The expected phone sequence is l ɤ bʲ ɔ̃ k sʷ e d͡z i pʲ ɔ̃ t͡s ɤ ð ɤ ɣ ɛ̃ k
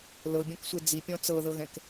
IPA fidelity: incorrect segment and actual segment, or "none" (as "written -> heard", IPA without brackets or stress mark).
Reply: none